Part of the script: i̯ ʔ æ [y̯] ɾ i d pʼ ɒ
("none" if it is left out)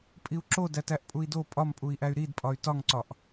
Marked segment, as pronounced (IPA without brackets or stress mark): y̯